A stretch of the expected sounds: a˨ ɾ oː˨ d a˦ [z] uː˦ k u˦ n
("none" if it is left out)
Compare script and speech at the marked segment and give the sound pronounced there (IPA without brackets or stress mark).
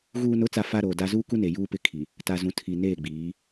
z